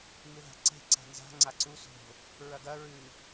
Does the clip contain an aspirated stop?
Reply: no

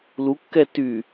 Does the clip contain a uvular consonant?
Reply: no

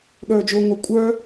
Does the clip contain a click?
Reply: no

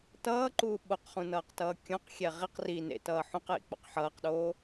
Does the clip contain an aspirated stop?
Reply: no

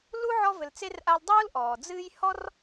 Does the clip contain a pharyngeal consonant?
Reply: yes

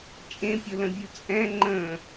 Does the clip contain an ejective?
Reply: yes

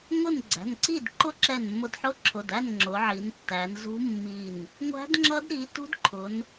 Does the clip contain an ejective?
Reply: no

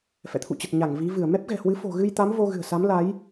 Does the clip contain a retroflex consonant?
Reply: no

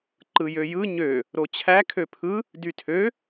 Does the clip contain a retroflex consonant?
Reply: no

